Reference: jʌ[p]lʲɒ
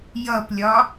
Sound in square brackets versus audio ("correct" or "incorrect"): correct